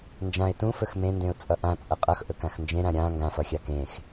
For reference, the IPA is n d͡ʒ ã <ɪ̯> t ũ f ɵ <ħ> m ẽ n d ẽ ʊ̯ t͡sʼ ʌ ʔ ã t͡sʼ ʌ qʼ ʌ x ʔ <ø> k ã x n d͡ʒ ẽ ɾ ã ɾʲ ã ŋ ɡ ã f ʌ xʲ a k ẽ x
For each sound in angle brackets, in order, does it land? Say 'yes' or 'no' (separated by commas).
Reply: yes, no, no